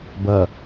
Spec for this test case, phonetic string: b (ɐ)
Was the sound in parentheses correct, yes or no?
yes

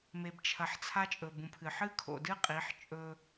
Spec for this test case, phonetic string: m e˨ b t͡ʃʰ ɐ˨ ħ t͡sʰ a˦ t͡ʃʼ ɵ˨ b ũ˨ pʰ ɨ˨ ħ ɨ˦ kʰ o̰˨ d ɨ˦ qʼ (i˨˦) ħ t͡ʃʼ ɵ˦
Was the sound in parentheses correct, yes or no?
yes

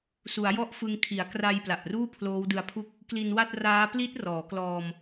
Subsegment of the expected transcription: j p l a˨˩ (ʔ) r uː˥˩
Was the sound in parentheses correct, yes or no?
yes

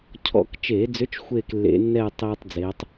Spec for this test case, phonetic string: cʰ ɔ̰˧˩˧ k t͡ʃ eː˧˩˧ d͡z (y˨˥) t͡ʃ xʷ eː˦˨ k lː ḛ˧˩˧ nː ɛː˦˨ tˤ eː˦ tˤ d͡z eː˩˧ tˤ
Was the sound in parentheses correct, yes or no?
no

